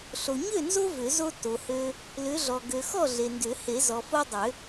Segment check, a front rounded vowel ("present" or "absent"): present